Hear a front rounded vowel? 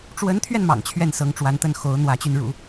yes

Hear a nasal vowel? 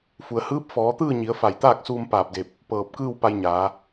no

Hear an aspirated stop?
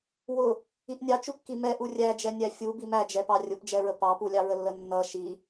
no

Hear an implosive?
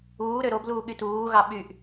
yes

